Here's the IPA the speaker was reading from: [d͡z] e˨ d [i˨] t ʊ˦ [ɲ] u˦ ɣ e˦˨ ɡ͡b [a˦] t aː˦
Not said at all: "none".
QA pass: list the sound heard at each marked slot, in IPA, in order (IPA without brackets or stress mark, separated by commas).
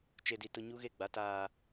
t͡ʃ, i˨, ɲ, a˦